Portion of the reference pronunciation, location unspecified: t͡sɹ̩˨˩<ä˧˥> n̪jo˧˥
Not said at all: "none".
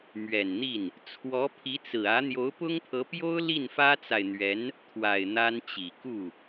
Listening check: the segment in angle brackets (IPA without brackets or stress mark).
ä˧˥